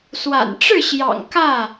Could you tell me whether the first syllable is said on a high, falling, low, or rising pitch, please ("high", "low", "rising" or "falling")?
low